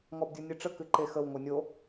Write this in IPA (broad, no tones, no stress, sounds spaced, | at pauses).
ŋ ɔ b dʲ u nʲ ɨ ʈ͡ʂ ə k ɨ ǃ e x ə w ŋʷ ɤ nʲ o